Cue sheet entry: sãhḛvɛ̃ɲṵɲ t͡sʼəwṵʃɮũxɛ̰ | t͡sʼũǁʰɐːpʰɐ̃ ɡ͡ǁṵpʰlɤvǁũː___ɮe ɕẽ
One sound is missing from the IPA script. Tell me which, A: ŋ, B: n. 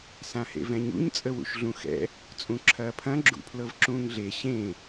A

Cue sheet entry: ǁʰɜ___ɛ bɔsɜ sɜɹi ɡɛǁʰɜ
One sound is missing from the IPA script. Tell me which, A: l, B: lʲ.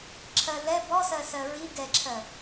A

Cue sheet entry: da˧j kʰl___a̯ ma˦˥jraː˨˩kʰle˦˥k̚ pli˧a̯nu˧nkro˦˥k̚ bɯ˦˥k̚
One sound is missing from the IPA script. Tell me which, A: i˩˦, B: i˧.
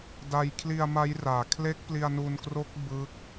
B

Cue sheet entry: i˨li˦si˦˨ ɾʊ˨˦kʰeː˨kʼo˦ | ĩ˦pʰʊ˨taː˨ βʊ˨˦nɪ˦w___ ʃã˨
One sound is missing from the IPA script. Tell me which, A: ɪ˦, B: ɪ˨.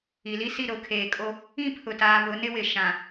B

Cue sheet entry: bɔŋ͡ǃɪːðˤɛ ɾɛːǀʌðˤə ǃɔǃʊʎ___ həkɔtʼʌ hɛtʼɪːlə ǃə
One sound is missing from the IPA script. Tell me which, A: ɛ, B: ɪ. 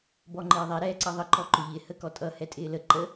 B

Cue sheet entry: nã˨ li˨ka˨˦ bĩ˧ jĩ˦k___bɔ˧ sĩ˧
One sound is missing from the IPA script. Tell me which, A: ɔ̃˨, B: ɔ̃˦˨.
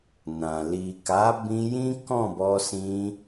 B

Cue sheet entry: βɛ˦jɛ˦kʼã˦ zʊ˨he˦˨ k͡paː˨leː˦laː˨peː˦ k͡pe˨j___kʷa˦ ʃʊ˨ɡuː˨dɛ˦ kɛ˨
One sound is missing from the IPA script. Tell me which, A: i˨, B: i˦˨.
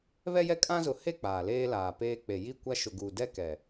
B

